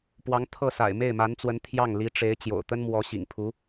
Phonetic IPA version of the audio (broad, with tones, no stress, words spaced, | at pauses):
pwɑ˧˥ŋ t̪ʰɤ˥˩sa̰˨˩ɪ̯ me˥˩ɪ̯ma˧˥nt͡swə˧˥n t̪ʰjɑ˥˩ŋli˧˥ʈ͡ʂe˧˥ɪ̯ t͡ɕjo̰˨˩ʊ̯t̪ə˥nmwɔ˧˥ ɕḭ˨˩ŋpʰu˧˥